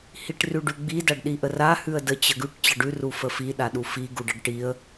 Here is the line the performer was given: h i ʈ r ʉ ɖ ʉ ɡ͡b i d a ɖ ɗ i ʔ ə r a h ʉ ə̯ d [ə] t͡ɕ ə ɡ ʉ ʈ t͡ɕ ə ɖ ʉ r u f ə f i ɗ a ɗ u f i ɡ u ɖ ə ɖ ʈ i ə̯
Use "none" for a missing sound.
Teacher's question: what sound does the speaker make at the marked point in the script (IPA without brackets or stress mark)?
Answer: ə